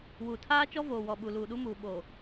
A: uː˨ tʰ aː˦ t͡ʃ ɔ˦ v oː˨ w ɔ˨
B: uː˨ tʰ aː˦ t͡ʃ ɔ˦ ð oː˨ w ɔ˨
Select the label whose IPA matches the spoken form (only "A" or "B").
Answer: A